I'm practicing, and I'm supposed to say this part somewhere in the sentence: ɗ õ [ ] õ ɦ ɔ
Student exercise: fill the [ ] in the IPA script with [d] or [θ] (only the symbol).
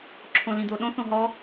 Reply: θ